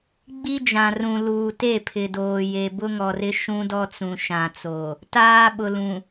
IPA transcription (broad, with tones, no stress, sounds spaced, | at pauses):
ɡ͡b i˦ d͡ʒ ã˨ r ũ˨ l uː˨ t e˦˨ pʰ ɪ˨ d oː˨ j e˨ b ʊ˦ ŋ ɔ˨ r ɪ˦ ʃ ũ˦ d ɔ˦ t͡s ũ˨ ʃ ã˨ t͡s o˨ | t aː˦ ɓ ʊ˨ l ũ˨